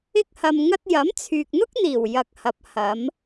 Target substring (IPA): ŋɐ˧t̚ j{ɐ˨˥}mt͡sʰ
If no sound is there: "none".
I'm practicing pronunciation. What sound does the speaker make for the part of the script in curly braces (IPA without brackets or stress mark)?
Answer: ɐ˨˥